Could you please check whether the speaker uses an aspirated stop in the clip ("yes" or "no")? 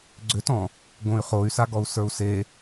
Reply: no